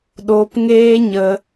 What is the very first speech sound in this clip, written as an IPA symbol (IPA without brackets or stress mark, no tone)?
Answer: ɗ